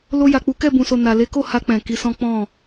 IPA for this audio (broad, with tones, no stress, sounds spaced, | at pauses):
l o˧ j a˨ k͡p u˨˦ k ɛ˦˨ b ũ˨ s o˨ n a˨ l e˨˦ k o˦˨ h a˧ k͡p ɛ̃˨ k i˧ s ɔ̃˦ k͡p ɔ̃˦˨